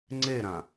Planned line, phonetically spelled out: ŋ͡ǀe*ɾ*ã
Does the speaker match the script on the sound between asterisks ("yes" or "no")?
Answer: yes